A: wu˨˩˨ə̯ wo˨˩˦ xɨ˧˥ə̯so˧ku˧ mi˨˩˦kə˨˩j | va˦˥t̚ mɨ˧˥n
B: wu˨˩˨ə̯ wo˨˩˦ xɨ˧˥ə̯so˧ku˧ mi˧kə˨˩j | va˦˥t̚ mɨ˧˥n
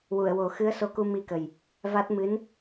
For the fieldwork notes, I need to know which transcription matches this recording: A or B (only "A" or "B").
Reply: B